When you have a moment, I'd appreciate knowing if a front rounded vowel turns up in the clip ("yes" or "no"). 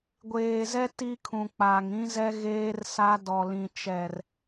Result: no